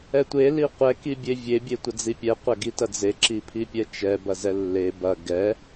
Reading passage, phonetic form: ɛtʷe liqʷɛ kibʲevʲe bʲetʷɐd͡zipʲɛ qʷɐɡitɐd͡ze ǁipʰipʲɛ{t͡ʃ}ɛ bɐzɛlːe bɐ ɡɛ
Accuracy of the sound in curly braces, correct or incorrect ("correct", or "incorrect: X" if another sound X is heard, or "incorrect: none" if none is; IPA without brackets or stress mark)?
correct